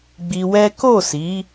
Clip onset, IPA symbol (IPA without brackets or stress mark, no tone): ɡ͡b